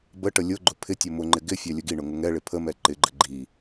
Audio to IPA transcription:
b ə ʈ ə lʲ ʊ ɡ͡ǃ ʊ pʰ ɪ tʲ ʊ m ʊ ŋ͡ǃ ɪ ɡ ɪ fʲ æ lʲ ə ɡ i ɳ ʊ ŋ ʊ ŋ ɛ ɭ ɪ pʰ ə m ɛ ǃ ɪ ɡ͡ǃ ə ɡ͡ǃ i

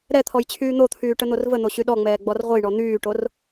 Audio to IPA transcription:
ɾ ɛ t̪ʰ ɔ j t͡ɕʰ yː n̪ o t̪ʰ yː ʈ ə n̪ o r v ə n̪ o ɕ y ɗ ɔ ŋ͡m ɛː ɡ͡b ɔ r ʁʷ ə j ɳ ɔ n̪ yː ʈ o r

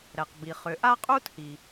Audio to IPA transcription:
ɾ ɛ˩ q b i˩ χ ʏː˩ ʔ a˥ qʼ uː˥ t h i˩

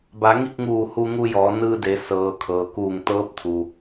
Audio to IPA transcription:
b a˩˧ ŋ i˥˨ k̚ ŋ uː˧˩ h u˧ ŋ u˧ j ɔː˩˧ n ɯː˧ d e˩˧ s ɤː˩ kʰ ɤː˩ k uː˧˩ ŋ t̪ ɤː˧˥ p̚ t̪ʰ u˩

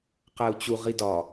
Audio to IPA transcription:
q æ u̯ t͡ɕ u ʁ i d ɒ

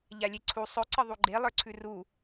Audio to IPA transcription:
ʎ a lʲ e ǀʰ u sˤ ɵ ǀ ə ðˤ u ɡ͡ǃ e lˠ ə˞ ǀʰ ʉ r u

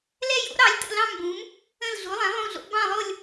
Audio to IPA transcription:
l ɛ˥˧ j o̰˨˥ ɾ ɑ˨˥ lʲ t ə̰˥˧ l ɑ̃˥˧ m b ũ˨˥ m | ə̃˥˧ l ɮ u˨˥ lˠ ɛ̃˨˥ lˠ ũ˥˧ ɮ o̰˨˥ b ɑ̃˥˧ lˠ o˥˧ lʲ

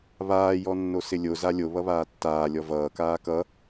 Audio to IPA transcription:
β aː j ɔ nː o s ɪ lʲ o z a lʲ o β ʌ β aː tː aː lʲ ɔ v ʌː k aː k ʌ

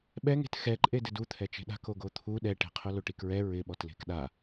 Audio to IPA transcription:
ɓ ɛ ŋ e̤ t x ɛ ǃʼ e d ɪ d u t̪ʰ ɛ t͡ʃ e̤ ɗ a̤ k o ɡ o t̪ʰ u ɗ ɛ ʈ e̤ qʰ ʊ l o ʈ i k ɹ ɛ ɹ ɪ ɓ ɔ t l e̤ k ɗ a

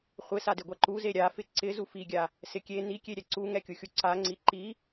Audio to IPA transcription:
χʷ ɪ s a d ɪ ɡʷ a ǃ u z e ɾʲ a f ɪ ǀ ɪ z u f i ɡʲ a | s ɪ kʲ e n i kʲ e ɾʲ ɛ ǀ u ŋ ɛ kʲ u xʲ u ǀ a ŋ͡ǀ i ǃ i

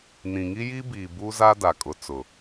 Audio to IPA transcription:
n ĩ˨ ŋ i˦ j i˦ b iː˨ b u˦ z a˦ d a˨ kʼ ʊ˨ t͡s ʊ˨

